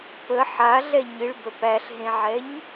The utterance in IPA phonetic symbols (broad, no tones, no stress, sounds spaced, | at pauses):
p ə ħ a ɮ ɛ ɲ ɨ ɭ b ə p æ ɬ ɦ ẽ ʕ ɛ ɲ